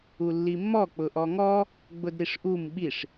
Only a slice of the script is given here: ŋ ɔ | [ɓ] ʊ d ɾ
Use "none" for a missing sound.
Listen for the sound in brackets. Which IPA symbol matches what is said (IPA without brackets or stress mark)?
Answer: ɡ͡b